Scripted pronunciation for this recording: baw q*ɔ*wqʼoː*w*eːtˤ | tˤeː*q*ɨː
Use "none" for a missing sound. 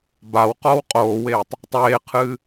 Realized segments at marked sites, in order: ɔ, w, qʰ

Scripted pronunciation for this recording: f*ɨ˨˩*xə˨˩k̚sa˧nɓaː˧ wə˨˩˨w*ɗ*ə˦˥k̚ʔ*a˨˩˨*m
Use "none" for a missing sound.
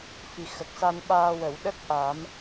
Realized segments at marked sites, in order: i˨˩, ɗ, a˨˩˦

